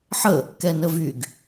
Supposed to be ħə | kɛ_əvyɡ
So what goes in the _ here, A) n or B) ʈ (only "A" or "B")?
A